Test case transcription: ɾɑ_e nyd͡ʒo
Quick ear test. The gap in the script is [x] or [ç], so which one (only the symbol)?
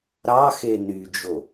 x